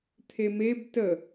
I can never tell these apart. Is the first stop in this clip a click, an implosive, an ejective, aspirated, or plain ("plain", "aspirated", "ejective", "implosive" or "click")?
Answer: aspirated